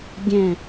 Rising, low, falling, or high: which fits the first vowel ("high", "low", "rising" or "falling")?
falling